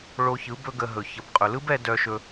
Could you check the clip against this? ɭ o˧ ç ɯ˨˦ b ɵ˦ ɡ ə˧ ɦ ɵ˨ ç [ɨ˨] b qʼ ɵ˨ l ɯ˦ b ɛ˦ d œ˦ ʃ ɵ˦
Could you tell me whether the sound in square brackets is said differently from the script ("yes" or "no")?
yes